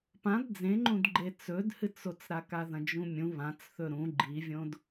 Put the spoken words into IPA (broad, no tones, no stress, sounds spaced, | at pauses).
p ã d d͡z ẽ ŋ͡ǃ ũ d ɡ͡ǃ e t͡s ɵ d h ɨ t͡s o t͡s ɾ a k a ð ɐ̃ d͡ʒ ũ mʲ ũ β ã t͡s θ ɵ ɾ ũ ɡ͡ǃ i vʲ õ d